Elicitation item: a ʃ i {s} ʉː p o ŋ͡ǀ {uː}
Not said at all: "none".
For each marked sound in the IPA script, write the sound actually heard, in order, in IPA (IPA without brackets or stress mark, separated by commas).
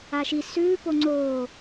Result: s, oː